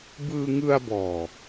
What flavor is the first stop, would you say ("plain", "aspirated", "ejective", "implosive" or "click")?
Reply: plain